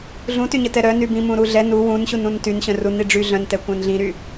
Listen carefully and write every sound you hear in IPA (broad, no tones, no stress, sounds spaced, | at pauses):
ɮ ũ t y ɲ ə t ɛ ɾ œ n y b ĩ m ũ ɾ u ɮ ɛ n u w ũ n ɕ u n ũ n t y n ɕ œ̃ r u n i ɖ͡ʐ y ɮ œ̃ n t ɛ kʷ œ̃ n ɮ ĩ ɾ y